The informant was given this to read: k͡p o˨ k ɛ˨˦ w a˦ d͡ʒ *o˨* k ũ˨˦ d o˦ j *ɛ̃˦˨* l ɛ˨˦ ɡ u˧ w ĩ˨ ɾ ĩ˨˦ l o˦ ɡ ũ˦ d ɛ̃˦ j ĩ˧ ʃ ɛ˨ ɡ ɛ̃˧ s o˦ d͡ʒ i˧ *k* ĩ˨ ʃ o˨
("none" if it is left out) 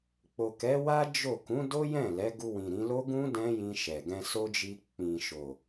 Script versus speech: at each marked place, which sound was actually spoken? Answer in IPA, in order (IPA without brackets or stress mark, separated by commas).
o˦˨, ɛ̃˦˨, k͡p